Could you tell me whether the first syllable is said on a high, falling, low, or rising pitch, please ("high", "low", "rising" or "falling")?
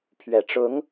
low